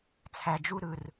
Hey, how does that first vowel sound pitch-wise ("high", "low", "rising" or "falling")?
low